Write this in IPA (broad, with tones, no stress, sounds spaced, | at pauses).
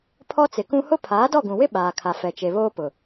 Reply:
pʰ ɔ˦ t͡s ɪ˨ k ũ˦ h ʊ˦ pʰ aː˨˦ d ɔ˦˨ ɡ ũ˨ w ɪ˦ ɓ aː˨ kʰ a˨ f ɛ˨ t͡ʃ e˨ β oː˦ p ʊ˨